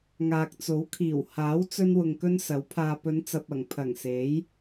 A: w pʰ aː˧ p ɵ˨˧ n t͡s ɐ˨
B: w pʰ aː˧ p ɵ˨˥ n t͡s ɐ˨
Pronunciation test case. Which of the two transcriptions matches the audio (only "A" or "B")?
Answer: A